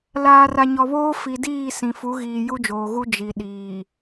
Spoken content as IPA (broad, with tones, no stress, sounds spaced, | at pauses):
l aː˨ r a˨ ɲ ɔ˨ β oː˦ f i˨ d iː˦˨ s ĩ˨ f u˨˦ ɣ iː˨ j u˦ d͡ʒ oː˨ ɣ u˦ d͡ʒ i˨ ɗ iː˨